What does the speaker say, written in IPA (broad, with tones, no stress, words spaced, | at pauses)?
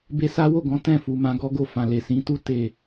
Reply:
be˧sa˦wo˦˨ɡɔ̃˨˦ tɛ̃˦˨fu˨ mã˧ɡɔ˦ɡo˦˨ fã˨le˨sĩ˨˦tu˦ te˦˨